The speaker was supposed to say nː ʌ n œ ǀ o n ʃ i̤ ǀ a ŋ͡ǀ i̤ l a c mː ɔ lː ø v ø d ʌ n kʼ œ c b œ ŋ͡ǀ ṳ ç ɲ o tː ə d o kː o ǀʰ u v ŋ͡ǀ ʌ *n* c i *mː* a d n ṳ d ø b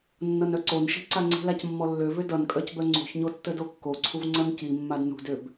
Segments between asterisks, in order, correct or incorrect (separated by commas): correct, correct